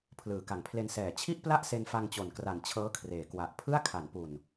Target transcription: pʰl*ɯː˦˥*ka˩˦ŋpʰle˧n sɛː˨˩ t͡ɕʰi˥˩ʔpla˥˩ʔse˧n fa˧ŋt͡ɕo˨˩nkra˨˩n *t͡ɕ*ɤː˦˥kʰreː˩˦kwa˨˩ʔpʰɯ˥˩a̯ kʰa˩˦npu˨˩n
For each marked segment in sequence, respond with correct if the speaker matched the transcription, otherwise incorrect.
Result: incorrect, incorrect

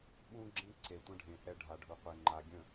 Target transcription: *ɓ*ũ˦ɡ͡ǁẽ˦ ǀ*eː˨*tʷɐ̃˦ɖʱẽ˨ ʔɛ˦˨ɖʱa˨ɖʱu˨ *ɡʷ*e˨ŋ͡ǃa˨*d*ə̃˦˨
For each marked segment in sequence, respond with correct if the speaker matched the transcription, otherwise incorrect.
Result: correct, incorrect, incorrect, incorrect

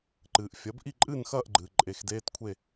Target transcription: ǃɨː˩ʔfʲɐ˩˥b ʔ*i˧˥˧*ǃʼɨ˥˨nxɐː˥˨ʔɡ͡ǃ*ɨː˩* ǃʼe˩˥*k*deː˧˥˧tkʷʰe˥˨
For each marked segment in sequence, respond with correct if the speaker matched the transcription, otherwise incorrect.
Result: incorrect, correct, incorrect

